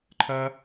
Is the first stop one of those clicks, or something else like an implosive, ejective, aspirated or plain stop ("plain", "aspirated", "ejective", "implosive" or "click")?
click